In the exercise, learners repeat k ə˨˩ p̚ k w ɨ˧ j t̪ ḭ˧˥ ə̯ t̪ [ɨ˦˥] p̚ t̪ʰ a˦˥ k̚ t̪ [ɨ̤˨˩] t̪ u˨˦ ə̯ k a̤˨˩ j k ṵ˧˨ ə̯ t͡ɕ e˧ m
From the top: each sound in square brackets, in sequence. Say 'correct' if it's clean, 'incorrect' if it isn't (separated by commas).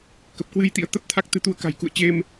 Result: incorrect, incorrect